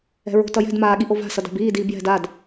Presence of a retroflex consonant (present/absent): absent